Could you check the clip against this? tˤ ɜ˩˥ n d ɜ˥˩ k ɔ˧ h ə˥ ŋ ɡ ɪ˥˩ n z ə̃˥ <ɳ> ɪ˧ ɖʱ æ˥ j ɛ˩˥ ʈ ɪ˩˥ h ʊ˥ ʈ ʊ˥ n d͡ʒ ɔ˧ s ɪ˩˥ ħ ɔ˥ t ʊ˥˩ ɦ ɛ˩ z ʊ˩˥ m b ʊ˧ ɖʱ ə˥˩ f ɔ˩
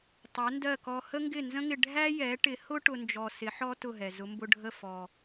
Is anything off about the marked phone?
yes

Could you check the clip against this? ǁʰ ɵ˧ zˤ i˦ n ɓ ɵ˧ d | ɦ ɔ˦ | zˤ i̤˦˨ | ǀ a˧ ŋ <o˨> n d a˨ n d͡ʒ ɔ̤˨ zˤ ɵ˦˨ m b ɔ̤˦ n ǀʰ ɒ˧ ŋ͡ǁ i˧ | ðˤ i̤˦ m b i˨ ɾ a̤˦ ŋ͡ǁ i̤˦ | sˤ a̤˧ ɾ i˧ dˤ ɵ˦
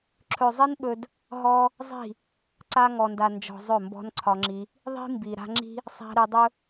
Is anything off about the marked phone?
yes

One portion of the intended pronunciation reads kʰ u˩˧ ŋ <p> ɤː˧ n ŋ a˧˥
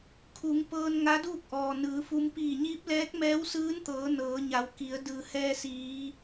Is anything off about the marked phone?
no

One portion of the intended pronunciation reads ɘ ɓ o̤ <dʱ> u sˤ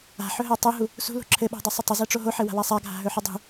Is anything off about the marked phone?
yes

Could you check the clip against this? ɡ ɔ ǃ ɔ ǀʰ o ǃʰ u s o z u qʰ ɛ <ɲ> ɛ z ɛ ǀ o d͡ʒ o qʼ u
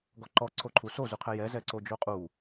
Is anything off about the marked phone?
yes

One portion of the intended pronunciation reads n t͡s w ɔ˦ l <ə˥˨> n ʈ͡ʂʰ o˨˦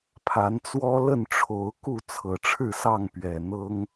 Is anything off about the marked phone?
no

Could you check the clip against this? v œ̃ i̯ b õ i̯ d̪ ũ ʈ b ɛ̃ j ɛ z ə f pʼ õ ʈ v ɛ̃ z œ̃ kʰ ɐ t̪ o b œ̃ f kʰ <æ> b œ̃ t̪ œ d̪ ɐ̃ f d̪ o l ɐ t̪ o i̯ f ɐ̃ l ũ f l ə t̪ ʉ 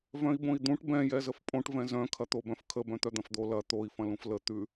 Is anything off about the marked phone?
yes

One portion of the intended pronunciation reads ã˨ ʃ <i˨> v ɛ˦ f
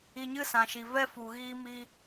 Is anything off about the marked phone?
no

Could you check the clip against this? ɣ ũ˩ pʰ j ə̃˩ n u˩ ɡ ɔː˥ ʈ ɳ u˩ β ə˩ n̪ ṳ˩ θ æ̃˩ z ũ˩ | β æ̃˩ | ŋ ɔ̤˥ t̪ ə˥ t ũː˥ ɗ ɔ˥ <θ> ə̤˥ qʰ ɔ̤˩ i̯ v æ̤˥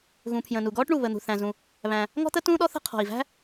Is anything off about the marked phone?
no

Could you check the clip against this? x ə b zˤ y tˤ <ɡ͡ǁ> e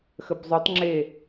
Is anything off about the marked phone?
yes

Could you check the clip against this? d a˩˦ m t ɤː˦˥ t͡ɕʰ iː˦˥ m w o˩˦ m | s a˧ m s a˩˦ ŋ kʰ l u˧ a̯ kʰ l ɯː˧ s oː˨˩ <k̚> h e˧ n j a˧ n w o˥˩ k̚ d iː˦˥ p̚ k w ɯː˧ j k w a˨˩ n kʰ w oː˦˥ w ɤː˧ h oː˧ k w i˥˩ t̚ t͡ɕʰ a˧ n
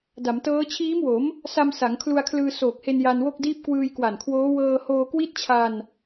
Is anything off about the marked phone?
no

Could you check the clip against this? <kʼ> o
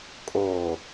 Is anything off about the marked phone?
no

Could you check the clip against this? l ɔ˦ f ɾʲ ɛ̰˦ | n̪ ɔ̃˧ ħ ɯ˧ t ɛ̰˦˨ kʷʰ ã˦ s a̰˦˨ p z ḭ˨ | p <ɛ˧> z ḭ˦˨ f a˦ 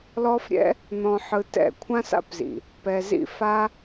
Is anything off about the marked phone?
no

